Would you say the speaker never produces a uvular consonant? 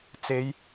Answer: yes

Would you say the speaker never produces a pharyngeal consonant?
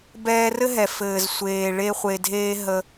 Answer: yes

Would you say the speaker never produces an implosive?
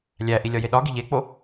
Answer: no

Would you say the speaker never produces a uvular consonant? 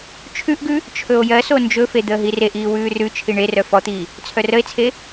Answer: yes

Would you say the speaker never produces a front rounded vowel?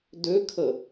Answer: no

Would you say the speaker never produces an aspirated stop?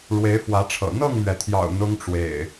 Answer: no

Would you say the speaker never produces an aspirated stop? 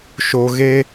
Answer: yes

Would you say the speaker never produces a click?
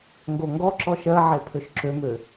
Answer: no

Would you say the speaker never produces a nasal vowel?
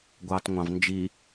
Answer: no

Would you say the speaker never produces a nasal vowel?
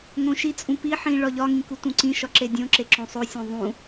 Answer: no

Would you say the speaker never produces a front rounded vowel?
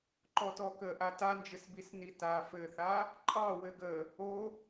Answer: yes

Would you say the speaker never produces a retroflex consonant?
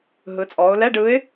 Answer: no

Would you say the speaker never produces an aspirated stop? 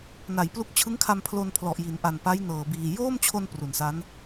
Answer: no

